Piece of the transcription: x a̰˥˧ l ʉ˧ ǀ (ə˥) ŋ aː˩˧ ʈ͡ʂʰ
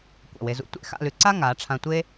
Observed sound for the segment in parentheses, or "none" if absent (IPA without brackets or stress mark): a˥